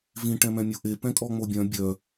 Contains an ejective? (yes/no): yes